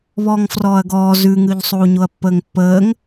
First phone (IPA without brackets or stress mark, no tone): β